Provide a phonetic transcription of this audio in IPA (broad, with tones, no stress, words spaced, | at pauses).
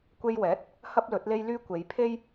kʷe˧jwɛː˨˥t̚ | hɐ˥p̚lɵ˨˥t̚le˥jlyː˥ kʷe˨˧jpʰe˥j